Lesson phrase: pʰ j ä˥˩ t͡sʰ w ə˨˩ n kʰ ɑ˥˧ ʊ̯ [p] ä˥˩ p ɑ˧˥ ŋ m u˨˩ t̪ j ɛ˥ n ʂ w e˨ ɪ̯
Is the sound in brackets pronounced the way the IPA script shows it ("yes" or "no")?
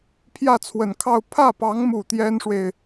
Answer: no